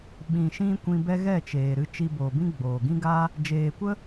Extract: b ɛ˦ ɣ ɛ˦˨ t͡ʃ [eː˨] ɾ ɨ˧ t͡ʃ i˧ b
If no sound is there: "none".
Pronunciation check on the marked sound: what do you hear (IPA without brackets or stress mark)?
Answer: eː˨